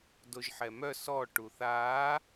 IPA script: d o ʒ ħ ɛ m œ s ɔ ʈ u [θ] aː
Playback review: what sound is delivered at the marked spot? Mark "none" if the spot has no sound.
θ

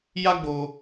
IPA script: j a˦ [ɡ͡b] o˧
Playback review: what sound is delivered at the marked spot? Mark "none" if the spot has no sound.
ɡ͡b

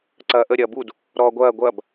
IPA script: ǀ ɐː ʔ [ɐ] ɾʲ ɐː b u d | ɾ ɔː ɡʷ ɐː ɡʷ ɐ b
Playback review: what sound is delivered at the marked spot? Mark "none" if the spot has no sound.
ə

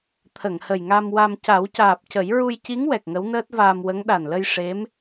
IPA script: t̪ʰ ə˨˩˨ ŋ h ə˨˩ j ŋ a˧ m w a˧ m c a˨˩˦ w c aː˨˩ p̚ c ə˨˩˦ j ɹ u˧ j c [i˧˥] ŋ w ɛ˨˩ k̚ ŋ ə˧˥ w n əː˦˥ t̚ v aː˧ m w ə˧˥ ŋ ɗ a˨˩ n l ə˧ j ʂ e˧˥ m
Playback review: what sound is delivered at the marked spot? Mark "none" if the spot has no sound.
i˧˥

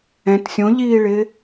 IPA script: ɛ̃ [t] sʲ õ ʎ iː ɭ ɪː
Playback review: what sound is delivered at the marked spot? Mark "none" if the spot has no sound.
t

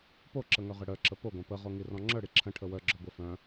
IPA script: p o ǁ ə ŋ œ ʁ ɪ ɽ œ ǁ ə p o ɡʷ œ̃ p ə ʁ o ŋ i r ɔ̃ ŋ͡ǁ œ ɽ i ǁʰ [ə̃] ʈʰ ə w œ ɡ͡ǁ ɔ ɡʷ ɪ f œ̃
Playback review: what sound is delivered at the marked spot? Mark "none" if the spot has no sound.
ə̃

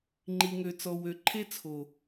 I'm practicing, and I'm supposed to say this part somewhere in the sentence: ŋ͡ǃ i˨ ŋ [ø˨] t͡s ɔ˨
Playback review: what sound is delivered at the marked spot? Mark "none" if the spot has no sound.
ø˨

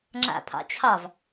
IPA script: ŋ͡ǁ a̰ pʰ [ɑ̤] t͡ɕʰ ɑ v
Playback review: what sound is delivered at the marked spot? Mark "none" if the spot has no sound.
ɑ̰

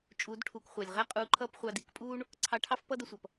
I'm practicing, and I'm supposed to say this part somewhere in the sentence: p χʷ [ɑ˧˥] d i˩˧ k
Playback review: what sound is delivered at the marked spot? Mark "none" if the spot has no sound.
ɑ˧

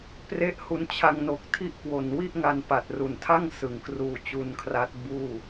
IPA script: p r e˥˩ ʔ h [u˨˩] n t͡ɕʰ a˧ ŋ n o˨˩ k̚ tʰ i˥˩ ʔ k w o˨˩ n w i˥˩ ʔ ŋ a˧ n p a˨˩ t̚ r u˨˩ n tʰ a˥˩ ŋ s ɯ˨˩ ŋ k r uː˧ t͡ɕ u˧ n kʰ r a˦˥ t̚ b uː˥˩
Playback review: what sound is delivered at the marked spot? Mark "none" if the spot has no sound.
u˦˥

